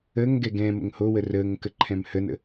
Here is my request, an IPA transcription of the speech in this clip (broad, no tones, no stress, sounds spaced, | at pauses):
əː ŋ ɡ ɛ ɡ ɛ̃ m ə̰ ŋ h o w ə r əː ŋ k ə ǃʰ ɛ̃ m h ə n ə̰